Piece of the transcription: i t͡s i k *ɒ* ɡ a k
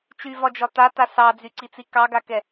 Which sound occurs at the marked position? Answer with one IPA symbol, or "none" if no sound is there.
ɑ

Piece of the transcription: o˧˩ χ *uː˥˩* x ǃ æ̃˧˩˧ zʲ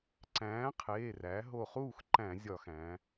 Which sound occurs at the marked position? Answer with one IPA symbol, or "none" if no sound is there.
uː˥˩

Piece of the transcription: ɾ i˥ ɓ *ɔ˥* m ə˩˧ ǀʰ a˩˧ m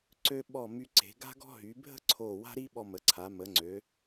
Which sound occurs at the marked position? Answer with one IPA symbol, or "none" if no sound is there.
ɔ˧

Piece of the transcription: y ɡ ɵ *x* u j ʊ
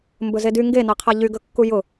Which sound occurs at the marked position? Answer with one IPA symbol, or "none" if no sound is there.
kː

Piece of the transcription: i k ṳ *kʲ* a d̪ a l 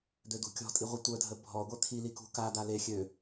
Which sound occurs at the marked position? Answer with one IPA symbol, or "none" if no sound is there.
k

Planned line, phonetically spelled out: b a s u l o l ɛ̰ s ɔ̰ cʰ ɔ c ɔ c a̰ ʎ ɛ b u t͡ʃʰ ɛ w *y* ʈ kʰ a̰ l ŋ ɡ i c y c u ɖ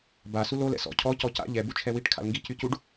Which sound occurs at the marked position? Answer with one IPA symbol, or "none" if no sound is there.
i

